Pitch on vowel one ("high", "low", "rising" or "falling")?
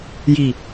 low